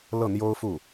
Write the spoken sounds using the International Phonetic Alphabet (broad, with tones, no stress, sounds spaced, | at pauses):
l ɤ˥˩ n̪ j o˥ ʊ̯ f u˥˩